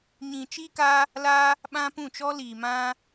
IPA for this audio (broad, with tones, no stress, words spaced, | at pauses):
ɲĩ˧t͡ʃiː˦ka˦ | la˦ | ɓã˦pũ˦˨ t͡ʃɔ˦liː˧mã˦